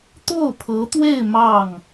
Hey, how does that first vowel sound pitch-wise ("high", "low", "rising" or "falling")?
falling